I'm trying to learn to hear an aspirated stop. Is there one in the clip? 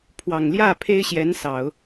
yes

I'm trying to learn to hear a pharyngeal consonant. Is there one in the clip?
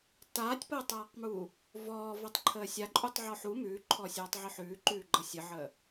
yes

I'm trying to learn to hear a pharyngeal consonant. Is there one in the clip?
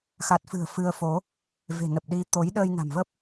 no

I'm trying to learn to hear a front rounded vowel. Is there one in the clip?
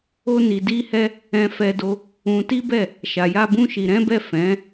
no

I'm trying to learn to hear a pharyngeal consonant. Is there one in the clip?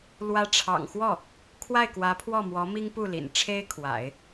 no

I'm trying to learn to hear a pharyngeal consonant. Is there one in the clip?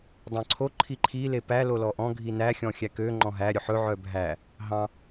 yes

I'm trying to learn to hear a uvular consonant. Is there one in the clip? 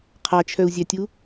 yes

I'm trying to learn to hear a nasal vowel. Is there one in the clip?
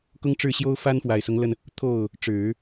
no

